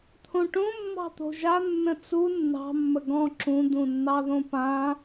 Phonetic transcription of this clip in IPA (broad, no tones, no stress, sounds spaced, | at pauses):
t̪ʰ õ ʈ õ mː ɑ̤ t̪ o̤ ʒ a nː ə̃ t͡s u nː ɑ̤ mː ə ɡ ɔ̃ ǁ ũ d̪ ũ nː ɑ ð õ p ã